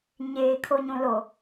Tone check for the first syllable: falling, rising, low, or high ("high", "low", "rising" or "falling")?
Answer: low